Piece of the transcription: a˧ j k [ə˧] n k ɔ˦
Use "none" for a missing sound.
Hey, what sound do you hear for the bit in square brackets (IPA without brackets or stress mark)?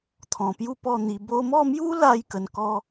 ə˧